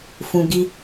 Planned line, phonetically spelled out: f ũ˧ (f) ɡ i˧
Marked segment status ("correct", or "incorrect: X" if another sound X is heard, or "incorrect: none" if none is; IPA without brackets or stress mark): incorrect: none